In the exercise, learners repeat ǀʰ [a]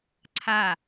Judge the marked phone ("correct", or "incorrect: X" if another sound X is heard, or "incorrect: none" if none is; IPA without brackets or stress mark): correct